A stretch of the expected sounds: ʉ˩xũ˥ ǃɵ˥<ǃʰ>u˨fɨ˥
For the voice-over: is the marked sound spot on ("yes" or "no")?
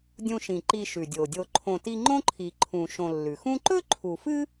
yes